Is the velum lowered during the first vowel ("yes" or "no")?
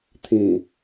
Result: yes